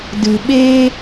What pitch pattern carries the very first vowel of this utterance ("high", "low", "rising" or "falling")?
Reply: low